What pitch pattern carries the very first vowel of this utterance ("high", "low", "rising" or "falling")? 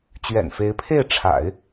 low